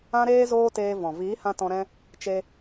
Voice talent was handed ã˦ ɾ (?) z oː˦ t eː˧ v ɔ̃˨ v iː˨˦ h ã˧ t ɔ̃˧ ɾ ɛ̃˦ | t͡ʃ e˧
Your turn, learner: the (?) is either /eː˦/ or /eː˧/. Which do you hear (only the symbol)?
eː˦